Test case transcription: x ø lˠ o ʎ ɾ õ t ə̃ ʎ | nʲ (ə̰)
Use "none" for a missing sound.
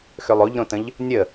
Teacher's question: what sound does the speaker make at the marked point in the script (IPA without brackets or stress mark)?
ə